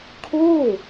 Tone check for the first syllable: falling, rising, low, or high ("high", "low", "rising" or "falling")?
falling